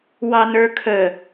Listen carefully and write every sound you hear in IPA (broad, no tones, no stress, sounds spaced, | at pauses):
w ɑ n ə˞ kʰ ə